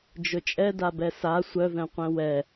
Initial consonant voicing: voiced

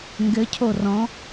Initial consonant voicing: voiced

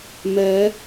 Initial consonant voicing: voiced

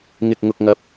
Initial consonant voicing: voiced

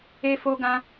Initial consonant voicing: voiceless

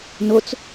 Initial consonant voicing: voiced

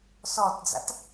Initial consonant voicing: voiceless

